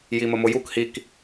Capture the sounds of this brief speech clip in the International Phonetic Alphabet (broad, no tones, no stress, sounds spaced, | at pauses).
j i m ə m ʊ j u k h i k